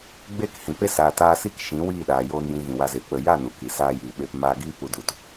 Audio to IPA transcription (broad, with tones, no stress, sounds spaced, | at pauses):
ɡ͡b eː˦ k h ĩ˨ p e˦ s aː˨ t aː˧ s i˦ k ʃ ĩ˨˦ w iː˦˨ ɗ aː˨ j oː˧ n j ĩ˧ ɣ ĩ˨ w a˧ z eː˨ k͡p ə˨ j a˦˨ n u˨ k i˨ s aː˧ j iː˨ ɓ e˧ p m aː˧ ɡ iː˦ p u˧ d u˧ t